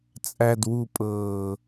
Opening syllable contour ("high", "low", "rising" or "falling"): low